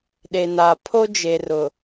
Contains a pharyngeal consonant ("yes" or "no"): no